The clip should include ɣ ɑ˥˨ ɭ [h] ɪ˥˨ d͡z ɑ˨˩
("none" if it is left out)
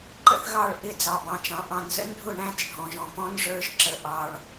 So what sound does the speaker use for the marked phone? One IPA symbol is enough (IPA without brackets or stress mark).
ʔ